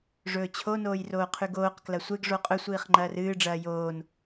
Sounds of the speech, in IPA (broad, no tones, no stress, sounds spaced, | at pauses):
ʐ ɵː t͡ɕʰ o n oː j r oː qʰ ʉ ɡ oː q k l ɐ sʷ e ɡ ʐ o qʼ ɵ sʷ iː χ ŋ͡ǃ ɐː r ɨː ɖ͡ʐ ɐː j oː n